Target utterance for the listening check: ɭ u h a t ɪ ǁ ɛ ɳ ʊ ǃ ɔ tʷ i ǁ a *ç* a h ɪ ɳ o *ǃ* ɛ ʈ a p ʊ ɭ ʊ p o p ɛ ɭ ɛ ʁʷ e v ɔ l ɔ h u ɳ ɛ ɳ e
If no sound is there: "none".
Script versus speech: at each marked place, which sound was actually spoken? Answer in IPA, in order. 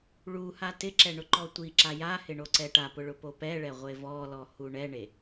j, ǀ

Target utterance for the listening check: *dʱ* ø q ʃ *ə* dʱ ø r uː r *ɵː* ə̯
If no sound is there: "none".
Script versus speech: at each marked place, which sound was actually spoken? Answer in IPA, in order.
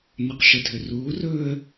n, ə, ɵː

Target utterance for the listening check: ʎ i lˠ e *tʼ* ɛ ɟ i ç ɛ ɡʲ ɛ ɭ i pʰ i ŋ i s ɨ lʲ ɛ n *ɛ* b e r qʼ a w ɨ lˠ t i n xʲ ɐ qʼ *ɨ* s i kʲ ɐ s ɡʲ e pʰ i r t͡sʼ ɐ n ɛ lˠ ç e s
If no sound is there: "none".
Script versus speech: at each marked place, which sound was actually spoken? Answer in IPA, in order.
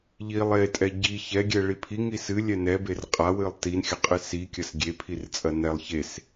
tʼ, ɛ, ɨ

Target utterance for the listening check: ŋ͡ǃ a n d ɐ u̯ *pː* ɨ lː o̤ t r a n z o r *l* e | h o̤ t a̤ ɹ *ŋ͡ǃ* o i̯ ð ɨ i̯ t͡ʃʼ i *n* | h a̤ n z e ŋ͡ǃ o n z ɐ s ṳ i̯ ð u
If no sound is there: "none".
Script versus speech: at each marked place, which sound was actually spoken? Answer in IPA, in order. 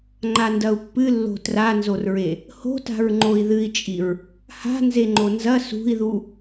pː, ɹ, ŋ͡ǃ, ɹ

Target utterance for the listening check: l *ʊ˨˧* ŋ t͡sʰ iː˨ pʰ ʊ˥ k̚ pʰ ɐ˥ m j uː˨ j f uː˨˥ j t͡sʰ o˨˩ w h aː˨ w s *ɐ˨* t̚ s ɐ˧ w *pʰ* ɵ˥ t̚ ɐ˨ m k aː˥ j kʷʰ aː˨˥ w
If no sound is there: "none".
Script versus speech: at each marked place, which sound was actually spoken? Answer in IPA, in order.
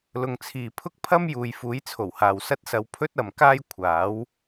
ʊ˨, ɐ˥, pʰ

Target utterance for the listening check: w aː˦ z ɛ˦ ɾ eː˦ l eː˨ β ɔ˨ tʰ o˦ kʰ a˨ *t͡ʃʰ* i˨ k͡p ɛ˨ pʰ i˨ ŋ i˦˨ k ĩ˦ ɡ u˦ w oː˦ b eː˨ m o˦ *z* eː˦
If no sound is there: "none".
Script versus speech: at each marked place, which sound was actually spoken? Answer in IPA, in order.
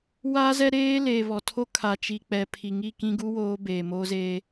t͡ʃ, z

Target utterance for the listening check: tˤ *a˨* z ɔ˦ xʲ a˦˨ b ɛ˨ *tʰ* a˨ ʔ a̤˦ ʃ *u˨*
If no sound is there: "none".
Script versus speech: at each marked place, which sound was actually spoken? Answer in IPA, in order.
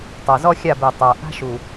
a˨, tˤ, u˨

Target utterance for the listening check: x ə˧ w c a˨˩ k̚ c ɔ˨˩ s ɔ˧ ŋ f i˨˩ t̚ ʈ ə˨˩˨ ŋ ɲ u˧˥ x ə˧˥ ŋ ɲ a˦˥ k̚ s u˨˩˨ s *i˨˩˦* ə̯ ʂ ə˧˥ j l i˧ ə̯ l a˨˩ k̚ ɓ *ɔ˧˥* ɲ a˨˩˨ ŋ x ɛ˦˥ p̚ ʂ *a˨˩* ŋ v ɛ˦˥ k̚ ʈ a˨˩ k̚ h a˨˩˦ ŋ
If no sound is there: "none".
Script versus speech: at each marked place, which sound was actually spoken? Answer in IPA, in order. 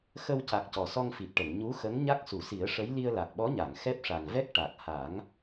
i˨˩˦, ɔ˧˥, a˨˩

